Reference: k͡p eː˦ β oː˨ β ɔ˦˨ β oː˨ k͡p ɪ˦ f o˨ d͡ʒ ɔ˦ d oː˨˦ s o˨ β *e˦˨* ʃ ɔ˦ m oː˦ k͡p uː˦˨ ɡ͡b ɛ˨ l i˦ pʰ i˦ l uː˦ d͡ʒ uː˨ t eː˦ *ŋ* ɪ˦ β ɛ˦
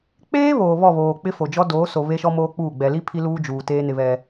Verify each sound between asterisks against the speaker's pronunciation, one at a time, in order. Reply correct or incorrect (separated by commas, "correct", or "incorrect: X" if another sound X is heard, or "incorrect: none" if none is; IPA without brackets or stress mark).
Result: incorrect: e˦, incorrect: n